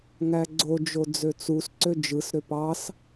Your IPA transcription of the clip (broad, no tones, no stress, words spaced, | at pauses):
ŋæɡ͡ǀo d͡ʒod͡zøt͡sus ǀød͡ʒɯs ɾøpɑs